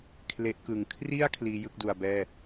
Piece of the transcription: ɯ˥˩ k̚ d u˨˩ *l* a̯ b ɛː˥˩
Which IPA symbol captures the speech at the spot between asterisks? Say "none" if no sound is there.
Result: none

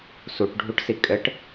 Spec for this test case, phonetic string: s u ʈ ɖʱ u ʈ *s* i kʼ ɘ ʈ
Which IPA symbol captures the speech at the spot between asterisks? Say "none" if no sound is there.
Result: s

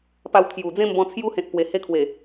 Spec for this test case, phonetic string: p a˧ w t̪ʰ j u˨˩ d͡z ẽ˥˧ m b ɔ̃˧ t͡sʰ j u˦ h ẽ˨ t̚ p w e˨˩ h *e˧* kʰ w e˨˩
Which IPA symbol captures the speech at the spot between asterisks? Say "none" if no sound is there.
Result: e˧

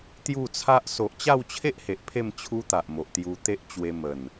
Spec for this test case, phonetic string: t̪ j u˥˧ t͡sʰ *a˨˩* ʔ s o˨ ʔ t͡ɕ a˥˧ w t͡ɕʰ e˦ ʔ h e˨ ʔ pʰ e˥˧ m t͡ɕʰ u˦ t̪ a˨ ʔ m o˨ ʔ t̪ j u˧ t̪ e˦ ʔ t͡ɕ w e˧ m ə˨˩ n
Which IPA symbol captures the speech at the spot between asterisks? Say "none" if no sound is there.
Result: a˦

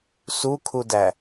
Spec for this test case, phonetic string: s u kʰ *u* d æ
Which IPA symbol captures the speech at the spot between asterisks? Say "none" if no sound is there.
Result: u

